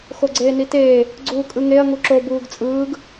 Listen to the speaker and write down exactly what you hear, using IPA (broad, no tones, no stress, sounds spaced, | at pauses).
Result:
x o ɡ͡ǀ eː n i t eː | ɡ͡ǀ uː kʼ ɯ ŋ e ɐ̯ ŋ u ǁ o b uː ɡ t͡sʼ ɯː ɡ